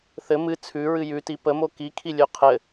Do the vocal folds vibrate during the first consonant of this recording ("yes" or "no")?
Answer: no